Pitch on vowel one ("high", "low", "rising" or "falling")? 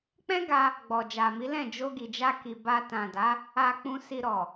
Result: high